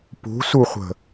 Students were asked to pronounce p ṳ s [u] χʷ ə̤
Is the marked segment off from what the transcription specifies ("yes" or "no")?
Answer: no